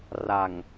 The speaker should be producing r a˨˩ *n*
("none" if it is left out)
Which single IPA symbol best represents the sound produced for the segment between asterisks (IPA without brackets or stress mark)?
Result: ŋ